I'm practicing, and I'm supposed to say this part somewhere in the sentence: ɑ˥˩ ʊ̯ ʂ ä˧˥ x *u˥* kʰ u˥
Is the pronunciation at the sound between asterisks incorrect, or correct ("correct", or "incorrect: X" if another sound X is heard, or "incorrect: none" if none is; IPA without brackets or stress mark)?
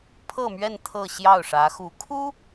incorrect: u˧˥